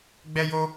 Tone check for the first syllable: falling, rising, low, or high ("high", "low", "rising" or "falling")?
high